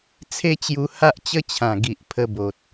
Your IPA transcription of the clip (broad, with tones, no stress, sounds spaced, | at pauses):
t͡sʰ e˦ t͡ɕ j u˧ h a˦ ʔ t͡ɕ ə˦ t͡ɕʰ ã˨˩ ɡ i˨ ʔ pʰ ə˧ b o˨ t̚